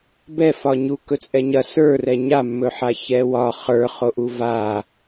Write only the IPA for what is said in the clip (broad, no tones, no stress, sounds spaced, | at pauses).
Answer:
b ɛ f ɒ ɲ u k ɵ t͡sʼ ɛ ɲ ɐ s ə˞ r ɛ ɲ a mː ɵ ħ a ç ɛ w ɒ χ ə˞ χ o ʔ u v a